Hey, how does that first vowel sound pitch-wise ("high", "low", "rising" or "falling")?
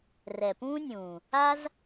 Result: low